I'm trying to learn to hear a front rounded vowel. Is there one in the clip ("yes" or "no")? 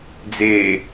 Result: no